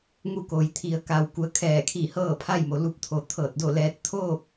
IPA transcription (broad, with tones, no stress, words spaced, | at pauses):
ŋu˧˥ko˩jt̪ʰi˩˧ə̯ ka˧˩w ku˩˧ə̯kʰɛː˧˩kʰi˧˩ hɤː˥˨pʰa˥˨j mo˩lu˧˥p̚t̪ʰo˩ t̪ʰɤː˧˩t̚do˥˨lɛː˧˥t̚ t̪ʰoː˥˨k̚